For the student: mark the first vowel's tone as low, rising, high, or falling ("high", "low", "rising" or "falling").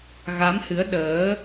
rising